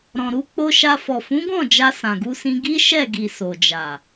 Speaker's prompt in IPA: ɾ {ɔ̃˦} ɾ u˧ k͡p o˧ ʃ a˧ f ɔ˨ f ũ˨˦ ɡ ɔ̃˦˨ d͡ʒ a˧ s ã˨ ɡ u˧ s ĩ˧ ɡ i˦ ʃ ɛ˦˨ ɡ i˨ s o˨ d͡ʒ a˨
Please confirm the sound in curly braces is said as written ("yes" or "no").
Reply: no